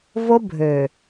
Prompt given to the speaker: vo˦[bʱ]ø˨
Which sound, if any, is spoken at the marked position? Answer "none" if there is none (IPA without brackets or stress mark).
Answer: bʱ